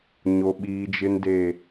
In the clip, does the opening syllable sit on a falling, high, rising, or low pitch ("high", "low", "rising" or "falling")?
low